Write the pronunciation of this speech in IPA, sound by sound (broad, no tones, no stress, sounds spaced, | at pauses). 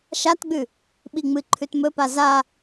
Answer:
ʃ a t ɡ͡b ʉ | ɓ i ŋ͡m ɨ ǃʰ ʉ t m ɵ p a z a